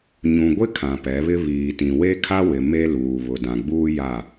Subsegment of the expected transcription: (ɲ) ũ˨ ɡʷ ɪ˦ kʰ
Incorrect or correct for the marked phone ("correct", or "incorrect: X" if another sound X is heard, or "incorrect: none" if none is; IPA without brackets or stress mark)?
correct